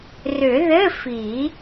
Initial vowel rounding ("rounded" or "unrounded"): rounded